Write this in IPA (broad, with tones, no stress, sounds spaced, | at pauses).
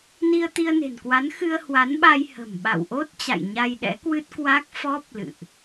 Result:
n i˧ ə̯ t̪ i˧ ə̯ n e̤˨˩ n k w a˨˦ n x ɨ˧ ə̯ h w a˨˦ n ɓ a˧ j h ə̤˨˩ m ɓ a̰˧˨ w ʔ o˦˥ t̚ t͡ɕ a̰˧˨ j ɲ a˧ j ɗ ɛ̰˧˥ k w ɨ˦˥ t̚ k w a˦˥ k̚ f ɔ˦˥ p̚ l ɨ̰˧˨ ʔ